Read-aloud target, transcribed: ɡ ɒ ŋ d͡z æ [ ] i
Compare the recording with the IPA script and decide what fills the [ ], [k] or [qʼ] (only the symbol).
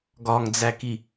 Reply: k